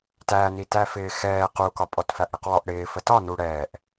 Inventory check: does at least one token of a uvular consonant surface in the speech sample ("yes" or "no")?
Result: yes